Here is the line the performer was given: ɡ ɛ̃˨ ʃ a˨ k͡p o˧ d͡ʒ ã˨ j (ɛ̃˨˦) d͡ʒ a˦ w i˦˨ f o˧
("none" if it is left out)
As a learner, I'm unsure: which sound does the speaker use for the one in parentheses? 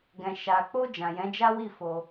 ɛ̃˨˦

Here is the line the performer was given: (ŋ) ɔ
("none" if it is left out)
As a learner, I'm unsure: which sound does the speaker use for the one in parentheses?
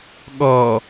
ɠ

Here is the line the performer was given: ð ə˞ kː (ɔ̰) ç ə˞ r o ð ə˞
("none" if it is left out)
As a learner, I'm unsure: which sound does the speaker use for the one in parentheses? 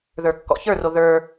ɔ̰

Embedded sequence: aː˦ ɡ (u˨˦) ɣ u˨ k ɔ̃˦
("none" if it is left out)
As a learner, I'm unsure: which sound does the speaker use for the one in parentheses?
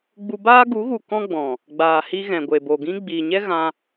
u˨˦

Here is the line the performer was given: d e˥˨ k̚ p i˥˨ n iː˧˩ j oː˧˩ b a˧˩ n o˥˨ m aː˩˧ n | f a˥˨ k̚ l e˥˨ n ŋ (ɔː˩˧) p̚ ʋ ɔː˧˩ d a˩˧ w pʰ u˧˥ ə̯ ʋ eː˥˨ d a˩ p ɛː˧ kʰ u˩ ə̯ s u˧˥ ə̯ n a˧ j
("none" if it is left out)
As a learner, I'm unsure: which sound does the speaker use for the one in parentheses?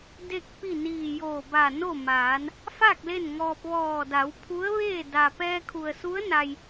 ɔː˧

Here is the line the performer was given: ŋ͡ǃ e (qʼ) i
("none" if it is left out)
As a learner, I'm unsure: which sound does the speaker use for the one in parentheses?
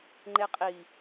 qʼ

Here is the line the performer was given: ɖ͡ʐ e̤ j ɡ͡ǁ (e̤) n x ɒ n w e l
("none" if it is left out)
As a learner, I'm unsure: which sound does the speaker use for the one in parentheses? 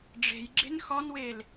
e̤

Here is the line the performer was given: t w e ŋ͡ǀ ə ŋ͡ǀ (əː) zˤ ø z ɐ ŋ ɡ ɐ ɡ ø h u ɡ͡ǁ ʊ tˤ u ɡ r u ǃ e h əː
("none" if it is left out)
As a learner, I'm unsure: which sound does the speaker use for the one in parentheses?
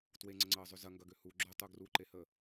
əː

